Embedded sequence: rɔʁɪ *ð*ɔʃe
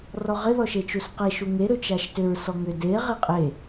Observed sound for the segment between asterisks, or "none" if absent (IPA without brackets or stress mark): ð